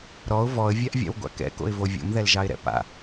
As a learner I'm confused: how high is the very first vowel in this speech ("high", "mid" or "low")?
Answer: mid